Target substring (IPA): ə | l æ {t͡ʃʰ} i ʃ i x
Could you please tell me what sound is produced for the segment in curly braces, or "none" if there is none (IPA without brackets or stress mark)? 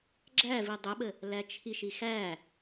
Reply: t͡ʃʰ